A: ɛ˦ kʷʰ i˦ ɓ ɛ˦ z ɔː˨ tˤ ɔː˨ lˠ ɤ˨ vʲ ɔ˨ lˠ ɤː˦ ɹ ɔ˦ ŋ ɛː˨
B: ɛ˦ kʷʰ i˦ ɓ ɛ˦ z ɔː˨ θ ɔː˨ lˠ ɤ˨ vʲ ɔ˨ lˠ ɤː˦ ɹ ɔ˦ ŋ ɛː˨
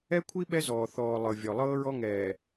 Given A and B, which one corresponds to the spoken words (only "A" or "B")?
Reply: B